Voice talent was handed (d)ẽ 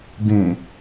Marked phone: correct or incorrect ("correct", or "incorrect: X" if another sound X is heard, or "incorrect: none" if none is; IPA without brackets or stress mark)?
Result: correct